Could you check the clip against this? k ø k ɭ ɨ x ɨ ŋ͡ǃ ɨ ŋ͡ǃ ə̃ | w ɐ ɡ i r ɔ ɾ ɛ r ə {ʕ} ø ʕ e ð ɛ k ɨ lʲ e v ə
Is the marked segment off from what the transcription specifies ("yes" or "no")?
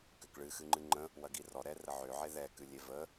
no